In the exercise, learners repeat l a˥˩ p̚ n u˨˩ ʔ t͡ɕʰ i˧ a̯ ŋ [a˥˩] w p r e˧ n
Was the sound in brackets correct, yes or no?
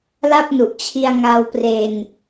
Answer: no